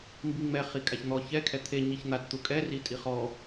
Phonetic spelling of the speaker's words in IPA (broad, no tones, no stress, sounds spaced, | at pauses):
m b i ŋ͡m ɛ χ i kʼ a ç n̪ ɔ ç ɛ kʰ ɛ t̪ʰ e ɲ i ç n̪ a t t̪ u kʼ ɛ r i tʼ i χ ɔ